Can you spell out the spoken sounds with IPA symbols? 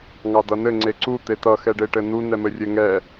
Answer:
ŋ ɑ d ʌ n ɘ ŋ͡ǀ e ǀ u t̪ e t ʌ x ɛ ɖ e ʈ ɘ n u n ɛ m ɘ rʲ ɘ ŋ ɛ

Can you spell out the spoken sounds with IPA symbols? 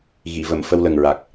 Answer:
ɣ i˨˩˨ v ə˨˩˨ m f ə˧ w l ə˨˩ ŋ ɹ a˨˩ k̚

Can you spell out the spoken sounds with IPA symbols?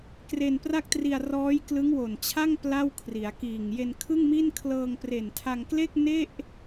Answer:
k r e˧ n p r a˥˩ k̚ t r i˧ a̯ r ɔː˦˥ j k l ɯ˦˥ ŋ w o˨˩ n t͡ɕʰ a˥˩ ŋ p l a˥˩ w kʰ r i˩˦ a̯ k iː˨˩ ŋ j e˧ n kʰ ɯ˥˩ ŋ m i˥˩ n kʰ l ɤː˧ ŋ p r e˨˩ n tʰ a˧ ŋ k l e˥˩ k̚ n e˥˩ ʔ

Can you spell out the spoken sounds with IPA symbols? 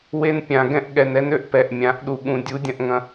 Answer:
w e˧ n pʲ ã˨ ɡ ɛ̃˧ ʔ ɠ ɛ˨ n ɛ˧ n ø˧ ʔ p ɛ˨ ʔ mʲ ã˨˦ ʔ ɗ u˨ ɠ ũ˨ dʲ u˨˦ dʲ ɐ̃˧ ʔ ŋ ɐ̃˧

